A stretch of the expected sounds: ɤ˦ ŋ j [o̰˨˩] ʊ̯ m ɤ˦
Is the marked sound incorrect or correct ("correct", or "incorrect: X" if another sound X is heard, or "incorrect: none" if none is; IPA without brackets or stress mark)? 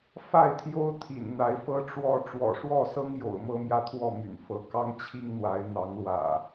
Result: correct